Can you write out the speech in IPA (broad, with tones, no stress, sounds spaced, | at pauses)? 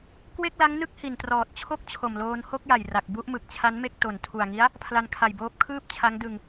k w e˥˩ k̚ l a˦˥ ŋ n ɯ˥˩ k̚ h i˨˩ n t r ɔː˨˩ t̚ t͡ɕʰ o˥˩ k̚ t͡ɕʰ o˨˩ m l oː˧ n h o˥˩ k̚ j a˨˩ j r a˨˩ k̚ b u˥˩ ʔ m ɯ˨˩ k̚ t͡ɕʰ a˦˥ n m e˥˩ k̚ t o˨˩ n tʰ u˨˩ a̯ ŋ i˦˥ a̯ | pʰ l a˧ n kʰ a˨˩ j b oː˦˥ p̚ kʰ ɯː˥˩ p̚ t͡ɕʰ a˦˥ ŋ d ɯ˧ ŋ